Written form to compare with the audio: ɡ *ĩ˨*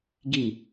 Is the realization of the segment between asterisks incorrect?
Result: yes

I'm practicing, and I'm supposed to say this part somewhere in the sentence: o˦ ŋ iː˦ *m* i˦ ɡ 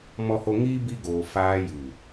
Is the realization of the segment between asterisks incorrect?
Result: yes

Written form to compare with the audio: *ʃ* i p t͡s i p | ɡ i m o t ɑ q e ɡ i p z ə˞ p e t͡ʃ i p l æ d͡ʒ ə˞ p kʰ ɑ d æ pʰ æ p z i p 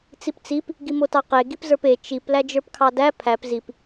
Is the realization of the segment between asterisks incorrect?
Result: yes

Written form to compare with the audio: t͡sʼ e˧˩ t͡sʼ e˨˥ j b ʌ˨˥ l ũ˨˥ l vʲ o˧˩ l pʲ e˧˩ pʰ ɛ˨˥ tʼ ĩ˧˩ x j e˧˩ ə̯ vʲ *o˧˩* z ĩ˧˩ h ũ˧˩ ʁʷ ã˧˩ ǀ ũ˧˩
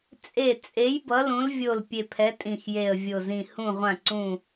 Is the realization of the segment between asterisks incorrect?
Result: no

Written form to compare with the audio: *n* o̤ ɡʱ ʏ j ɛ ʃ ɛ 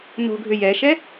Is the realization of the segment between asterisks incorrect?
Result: no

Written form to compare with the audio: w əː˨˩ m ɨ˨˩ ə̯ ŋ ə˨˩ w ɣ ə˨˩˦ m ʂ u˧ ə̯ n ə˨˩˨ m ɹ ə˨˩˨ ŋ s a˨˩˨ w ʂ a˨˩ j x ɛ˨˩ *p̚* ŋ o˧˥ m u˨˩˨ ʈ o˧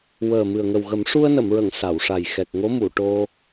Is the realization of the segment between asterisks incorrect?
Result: yes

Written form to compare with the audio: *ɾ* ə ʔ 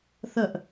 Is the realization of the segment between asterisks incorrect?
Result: yes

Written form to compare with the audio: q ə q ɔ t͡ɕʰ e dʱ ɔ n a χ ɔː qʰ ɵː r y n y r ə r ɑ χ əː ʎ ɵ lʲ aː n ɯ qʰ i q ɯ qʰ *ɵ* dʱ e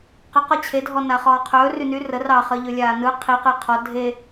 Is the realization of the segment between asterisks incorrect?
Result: yes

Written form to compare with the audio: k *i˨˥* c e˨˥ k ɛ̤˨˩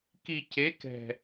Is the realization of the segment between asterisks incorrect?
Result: yes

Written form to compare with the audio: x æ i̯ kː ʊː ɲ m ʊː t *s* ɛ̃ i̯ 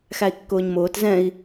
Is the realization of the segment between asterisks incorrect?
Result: yes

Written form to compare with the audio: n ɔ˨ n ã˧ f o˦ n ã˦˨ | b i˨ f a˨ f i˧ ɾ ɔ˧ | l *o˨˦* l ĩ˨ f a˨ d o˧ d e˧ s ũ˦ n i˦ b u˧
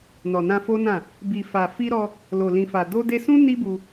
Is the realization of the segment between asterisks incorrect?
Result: yes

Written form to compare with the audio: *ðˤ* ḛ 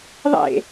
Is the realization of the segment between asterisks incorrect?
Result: no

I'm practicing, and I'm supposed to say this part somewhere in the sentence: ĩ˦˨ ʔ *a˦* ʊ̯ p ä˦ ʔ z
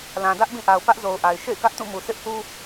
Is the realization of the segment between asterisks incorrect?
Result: yes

